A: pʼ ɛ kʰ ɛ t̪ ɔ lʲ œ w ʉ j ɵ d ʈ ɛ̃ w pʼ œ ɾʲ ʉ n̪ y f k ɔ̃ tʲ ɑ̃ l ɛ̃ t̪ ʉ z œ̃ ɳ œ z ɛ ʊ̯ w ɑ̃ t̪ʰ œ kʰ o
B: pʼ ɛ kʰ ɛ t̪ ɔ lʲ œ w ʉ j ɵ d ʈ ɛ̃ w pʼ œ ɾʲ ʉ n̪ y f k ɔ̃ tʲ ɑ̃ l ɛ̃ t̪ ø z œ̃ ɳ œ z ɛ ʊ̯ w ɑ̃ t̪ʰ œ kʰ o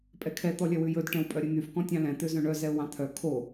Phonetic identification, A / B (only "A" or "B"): B